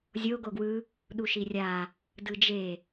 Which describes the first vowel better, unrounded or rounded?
rounded